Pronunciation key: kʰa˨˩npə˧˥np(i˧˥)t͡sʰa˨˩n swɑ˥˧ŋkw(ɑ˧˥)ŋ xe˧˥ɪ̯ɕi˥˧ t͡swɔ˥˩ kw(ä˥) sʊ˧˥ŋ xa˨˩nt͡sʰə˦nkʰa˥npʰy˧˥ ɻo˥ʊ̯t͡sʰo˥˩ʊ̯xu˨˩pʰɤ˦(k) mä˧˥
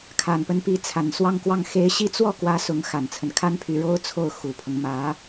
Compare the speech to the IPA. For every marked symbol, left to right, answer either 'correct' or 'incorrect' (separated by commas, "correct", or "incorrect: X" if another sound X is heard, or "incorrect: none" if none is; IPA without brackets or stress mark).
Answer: correct, incorrect: ɑ˥˩, correct, incorrect: ŋ